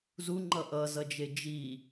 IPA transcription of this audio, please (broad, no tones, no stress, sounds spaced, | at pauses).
z u ŋ͡ǃ ʌ ʔ ʌ z ʌ d͡ʒ e d͡ʒ i